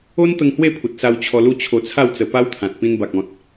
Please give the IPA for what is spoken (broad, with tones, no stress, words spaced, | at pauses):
o˦nt̪ə˧ŋ hwe˥˧pʰu˨t̚sa˧w t͡ɕʰɔ˧lu˦ t͡ɕʰo˧t͡sʰa˥˧wt͡sə˧ pa˦wt̪ʰã˨t̚ pĩ˧nba˨k̚ɔ̃˨t̚